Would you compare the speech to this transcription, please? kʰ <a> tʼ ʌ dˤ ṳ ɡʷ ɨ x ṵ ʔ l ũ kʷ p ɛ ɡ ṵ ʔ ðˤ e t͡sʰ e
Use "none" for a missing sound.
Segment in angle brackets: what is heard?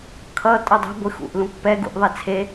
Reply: ʌ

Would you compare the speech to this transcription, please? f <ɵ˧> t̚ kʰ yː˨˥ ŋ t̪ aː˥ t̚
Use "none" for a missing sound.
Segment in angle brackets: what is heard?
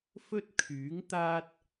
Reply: ɵ˥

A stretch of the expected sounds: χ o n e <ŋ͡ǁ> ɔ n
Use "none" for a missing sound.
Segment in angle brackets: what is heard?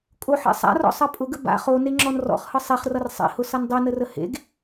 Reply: ŋ͡ǁ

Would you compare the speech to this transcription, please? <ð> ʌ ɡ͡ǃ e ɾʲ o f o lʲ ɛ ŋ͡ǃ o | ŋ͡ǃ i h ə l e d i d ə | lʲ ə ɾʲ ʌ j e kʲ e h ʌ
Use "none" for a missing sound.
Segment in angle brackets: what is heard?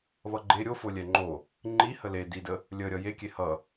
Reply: β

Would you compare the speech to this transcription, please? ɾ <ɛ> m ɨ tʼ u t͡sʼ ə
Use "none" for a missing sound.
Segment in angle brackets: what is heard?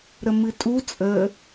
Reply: ə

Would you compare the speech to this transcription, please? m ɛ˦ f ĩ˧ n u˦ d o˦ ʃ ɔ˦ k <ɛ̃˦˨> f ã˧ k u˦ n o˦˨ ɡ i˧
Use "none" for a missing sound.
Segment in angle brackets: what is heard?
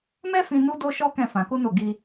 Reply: ɛ̃˦˨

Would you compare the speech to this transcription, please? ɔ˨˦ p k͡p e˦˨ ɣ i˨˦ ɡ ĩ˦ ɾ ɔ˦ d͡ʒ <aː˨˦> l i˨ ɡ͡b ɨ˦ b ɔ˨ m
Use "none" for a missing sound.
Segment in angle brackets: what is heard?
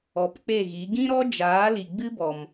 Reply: aː˨˦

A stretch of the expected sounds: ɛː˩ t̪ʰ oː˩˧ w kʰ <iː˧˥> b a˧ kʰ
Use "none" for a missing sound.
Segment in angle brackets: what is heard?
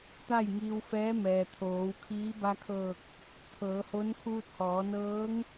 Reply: iː˧˥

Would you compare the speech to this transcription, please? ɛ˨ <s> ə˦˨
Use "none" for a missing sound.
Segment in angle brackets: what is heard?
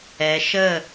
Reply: ʃ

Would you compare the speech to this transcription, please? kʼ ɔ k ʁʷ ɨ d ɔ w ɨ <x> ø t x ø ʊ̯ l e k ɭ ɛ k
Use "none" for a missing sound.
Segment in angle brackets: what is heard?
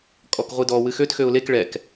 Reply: x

